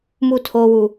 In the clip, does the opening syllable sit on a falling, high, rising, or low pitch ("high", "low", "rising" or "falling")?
falling